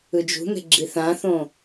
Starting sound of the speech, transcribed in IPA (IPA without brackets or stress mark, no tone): ɯ